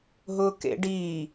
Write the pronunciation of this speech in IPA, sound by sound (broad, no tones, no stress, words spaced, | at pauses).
ɦʊːkḛɖiː